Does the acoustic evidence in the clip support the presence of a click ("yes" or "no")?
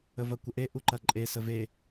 yes